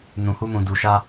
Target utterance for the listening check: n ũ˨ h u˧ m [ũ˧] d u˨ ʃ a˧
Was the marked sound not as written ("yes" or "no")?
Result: yes